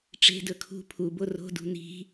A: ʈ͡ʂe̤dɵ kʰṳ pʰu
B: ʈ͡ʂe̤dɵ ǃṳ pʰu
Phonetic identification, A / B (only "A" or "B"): A